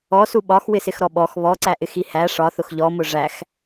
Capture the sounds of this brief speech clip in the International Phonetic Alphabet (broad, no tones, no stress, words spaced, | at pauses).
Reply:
ɔsu ɓɒxwɪsɪxɾɔ ɓɔx βɔǀæʔɪxi hæ ʂɒθʊx ʎɔmʊ ʐæx